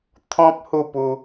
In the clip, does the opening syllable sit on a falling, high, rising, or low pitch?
high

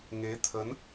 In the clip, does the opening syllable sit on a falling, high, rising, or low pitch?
rising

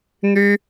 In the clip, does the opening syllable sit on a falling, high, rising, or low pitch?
high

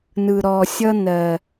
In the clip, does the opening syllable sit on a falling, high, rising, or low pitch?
low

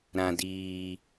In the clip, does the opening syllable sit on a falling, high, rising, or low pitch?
low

